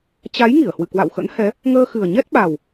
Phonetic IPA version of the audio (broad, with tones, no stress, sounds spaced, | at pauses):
t͡ɕ a˨˦ j ŋ i˧˩ ə̯ h w ɨ̰˧˨ k w a̰˧˨ w x ə̰˧˥ n h ɛ˨˦ | ŋ əː˧ x ɨ˨˩ ə̯ ɲ ɛ˦˥ t̚ ɓ a˨˩ w